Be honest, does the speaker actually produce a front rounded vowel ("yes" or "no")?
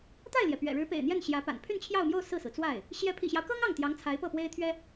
yes